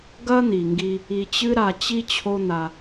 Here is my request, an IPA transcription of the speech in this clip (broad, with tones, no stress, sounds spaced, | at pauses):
ɡ ɐ˦ n̪ i˨ ŋ ɡ i˧ | i˧ t͡ɕ ɨ˦ ɾ a˧ t͡ɕ i˦ t͡ɕʰ o˦ n̪ a˧